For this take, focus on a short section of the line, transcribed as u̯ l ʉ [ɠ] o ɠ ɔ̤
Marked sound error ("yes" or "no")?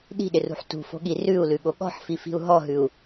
no